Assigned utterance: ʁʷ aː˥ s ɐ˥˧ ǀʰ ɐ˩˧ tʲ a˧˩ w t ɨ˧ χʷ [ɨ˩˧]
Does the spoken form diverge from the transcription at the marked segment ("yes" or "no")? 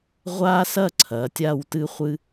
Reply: yes